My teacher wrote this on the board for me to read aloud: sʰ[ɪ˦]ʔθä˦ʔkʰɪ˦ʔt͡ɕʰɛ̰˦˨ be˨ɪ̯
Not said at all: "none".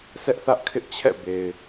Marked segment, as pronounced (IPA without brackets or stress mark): ɛ˦